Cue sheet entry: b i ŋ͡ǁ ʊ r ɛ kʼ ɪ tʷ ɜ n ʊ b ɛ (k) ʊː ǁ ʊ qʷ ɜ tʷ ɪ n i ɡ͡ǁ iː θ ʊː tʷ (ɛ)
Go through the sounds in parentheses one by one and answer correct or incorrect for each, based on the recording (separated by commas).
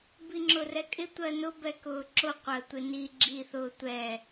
correct, correct